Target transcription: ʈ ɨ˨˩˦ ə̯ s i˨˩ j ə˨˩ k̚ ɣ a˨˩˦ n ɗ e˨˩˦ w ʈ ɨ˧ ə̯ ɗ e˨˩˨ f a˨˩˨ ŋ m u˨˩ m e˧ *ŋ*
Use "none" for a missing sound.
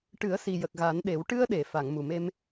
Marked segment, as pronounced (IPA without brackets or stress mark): m